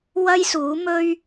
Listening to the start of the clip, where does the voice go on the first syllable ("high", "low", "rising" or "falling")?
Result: high